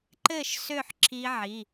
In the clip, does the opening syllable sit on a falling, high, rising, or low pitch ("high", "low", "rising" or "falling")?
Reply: falling